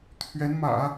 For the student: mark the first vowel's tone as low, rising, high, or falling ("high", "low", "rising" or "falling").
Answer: rising